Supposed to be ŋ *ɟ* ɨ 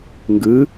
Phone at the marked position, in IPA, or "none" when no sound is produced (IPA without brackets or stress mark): ɡ